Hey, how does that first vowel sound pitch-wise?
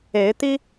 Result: rising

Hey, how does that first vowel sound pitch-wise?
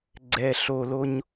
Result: low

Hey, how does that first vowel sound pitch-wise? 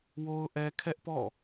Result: high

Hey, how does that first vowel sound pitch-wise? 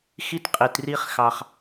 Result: high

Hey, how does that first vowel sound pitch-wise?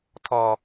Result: high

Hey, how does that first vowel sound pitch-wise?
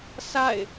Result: falling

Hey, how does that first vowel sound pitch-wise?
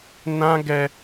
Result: high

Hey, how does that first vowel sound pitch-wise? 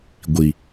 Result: low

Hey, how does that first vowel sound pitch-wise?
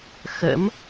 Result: rising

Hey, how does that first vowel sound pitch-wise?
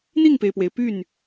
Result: falling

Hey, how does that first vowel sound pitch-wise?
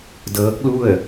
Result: rising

